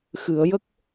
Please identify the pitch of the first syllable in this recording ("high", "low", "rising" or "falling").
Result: low